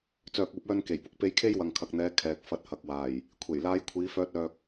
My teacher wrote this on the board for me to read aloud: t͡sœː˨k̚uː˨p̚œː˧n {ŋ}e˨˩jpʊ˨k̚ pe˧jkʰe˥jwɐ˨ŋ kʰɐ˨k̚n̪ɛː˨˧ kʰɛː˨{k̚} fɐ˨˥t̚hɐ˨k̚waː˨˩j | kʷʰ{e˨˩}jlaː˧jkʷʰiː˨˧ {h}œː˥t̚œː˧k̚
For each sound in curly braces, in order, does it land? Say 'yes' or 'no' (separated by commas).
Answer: no, yes, yes, no